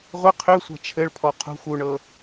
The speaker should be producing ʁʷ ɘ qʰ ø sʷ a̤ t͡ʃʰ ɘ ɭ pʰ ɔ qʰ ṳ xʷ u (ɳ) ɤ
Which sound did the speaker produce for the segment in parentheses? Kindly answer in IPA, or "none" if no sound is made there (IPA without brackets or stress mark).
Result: ɳ